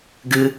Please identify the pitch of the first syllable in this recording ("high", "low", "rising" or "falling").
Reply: high